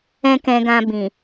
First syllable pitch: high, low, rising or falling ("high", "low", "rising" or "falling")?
high